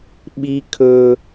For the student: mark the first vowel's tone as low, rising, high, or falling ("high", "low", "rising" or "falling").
high